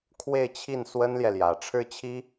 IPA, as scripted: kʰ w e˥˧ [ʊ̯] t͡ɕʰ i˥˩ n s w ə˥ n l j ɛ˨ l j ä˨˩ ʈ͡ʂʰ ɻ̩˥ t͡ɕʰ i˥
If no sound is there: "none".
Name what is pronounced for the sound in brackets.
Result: ɪ̯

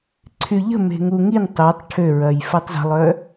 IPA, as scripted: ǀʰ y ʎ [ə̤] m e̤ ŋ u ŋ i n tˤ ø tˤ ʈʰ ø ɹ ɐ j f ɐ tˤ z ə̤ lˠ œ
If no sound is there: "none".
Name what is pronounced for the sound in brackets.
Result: ə̤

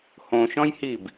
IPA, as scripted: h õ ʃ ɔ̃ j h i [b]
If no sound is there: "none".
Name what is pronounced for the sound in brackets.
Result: b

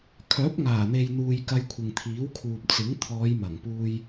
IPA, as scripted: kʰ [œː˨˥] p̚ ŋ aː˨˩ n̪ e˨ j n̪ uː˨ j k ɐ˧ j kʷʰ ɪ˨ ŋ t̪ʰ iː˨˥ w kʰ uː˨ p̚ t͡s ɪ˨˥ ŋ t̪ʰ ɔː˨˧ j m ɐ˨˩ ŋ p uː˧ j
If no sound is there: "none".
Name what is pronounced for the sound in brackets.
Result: œː˨˥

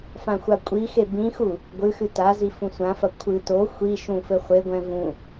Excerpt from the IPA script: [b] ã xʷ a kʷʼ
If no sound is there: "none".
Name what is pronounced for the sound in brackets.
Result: f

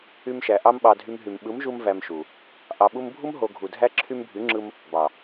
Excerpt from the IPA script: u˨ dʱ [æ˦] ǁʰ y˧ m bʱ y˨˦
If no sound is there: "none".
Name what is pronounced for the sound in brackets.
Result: æ˦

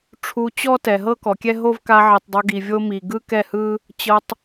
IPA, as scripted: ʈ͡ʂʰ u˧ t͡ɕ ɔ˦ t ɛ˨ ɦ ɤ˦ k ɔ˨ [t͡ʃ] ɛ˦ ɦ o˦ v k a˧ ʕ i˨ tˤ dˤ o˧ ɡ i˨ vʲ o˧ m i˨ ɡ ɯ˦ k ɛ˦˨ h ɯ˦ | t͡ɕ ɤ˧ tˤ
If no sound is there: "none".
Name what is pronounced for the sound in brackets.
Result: kʲ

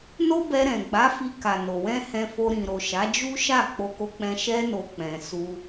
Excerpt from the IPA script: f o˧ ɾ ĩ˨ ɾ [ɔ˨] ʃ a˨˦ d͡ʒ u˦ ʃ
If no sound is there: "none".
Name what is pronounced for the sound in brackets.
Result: o˨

